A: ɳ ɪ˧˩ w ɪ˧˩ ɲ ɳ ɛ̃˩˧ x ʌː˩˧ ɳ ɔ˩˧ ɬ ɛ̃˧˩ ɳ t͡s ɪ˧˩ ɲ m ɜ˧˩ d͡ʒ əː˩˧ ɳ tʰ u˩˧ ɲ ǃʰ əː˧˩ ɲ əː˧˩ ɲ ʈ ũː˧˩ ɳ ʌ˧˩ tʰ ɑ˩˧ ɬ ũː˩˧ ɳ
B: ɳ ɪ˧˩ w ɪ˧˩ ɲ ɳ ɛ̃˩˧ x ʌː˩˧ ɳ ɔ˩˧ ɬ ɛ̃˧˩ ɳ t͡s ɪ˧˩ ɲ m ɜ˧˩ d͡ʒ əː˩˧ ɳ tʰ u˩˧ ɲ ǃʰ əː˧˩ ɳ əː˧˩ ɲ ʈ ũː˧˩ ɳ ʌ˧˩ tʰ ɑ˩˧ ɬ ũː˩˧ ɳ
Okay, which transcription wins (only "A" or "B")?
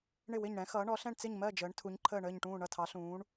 B